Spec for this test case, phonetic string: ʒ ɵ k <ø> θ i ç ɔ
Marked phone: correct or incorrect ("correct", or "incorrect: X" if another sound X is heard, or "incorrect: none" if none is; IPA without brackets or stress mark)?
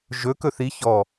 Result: incorrect: ɵ